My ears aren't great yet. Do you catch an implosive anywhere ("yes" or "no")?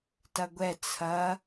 no